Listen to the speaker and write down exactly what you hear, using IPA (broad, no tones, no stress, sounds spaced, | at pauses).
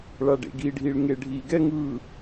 ɭ a ɖ ḛ ɡ i ɖʱ i ɭ ŋ e ɖʱ i ɡ ɛ ŋ ɯ